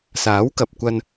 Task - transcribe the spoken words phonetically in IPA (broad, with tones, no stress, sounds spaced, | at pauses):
s aː˨˥ w k ɐ˨ p̚ kʷ ɐ˧ n